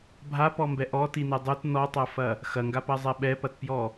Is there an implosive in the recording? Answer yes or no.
yes